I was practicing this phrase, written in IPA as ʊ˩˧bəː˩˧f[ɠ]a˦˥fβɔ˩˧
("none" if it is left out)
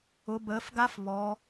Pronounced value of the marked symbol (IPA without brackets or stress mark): ɡ